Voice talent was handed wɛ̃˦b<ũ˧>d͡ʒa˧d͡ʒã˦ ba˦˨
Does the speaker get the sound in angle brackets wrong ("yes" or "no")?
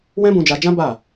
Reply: no